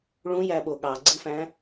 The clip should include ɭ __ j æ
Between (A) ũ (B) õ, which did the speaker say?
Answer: A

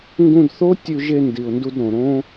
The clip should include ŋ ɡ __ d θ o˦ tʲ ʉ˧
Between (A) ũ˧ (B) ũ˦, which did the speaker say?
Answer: A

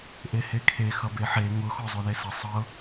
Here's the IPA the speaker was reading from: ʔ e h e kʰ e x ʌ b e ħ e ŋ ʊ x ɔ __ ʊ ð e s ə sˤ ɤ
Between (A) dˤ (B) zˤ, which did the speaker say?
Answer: B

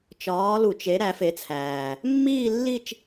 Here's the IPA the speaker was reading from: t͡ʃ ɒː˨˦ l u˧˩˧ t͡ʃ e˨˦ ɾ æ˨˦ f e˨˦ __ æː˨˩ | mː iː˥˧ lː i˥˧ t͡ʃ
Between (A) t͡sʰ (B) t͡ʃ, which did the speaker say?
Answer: A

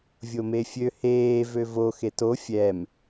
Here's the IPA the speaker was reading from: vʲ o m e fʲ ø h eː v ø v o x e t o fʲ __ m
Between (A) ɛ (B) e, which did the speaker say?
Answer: A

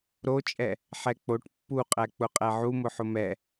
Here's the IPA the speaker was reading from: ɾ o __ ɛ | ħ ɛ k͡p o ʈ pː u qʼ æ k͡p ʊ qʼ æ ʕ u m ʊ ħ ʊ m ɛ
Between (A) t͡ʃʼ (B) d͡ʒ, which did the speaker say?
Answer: A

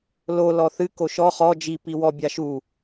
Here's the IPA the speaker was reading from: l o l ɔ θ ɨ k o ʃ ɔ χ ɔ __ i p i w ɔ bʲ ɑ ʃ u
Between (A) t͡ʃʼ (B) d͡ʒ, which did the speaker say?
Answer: B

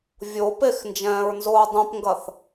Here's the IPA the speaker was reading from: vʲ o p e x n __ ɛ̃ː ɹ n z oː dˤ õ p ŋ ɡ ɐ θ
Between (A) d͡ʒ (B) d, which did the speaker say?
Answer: A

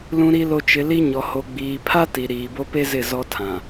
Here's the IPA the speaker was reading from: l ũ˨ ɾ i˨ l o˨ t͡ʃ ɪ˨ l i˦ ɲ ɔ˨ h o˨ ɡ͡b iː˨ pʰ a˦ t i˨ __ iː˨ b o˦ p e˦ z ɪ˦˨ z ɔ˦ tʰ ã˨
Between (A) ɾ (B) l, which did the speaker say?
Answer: A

